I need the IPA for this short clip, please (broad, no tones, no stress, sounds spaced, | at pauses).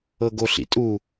ɤ ɡ o ɬ ḭ tʼ u